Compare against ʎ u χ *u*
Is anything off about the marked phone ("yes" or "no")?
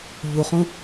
yes